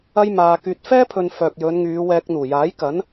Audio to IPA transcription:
ɐ˥ j m aː˧ k yː˧ t̚ f ɛː˥ pʰ ɵ˨ n f œː˨ k̚ j ɵ˨˧ n ŋ yː˨˧ w ɛː˧ k̚ n̪ uː˨˩ j aː˨˥ j k ɐ˨˥ n

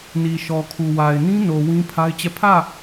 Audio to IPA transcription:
n i˨ ʃ ɔ˨ kʰ u˨ w a˨ ɪ̯ n ĩ˦ n o˨ w ĩ˦ pʰ a˦ ɪ̯ t͡ɕ ɛ˦˨ pʰ ä˦˨

